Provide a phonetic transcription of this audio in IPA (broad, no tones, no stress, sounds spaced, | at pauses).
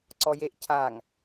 ǀ ɔ j e ʔ cʰ a ŋ